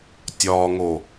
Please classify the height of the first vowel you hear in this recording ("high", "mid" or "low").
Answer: low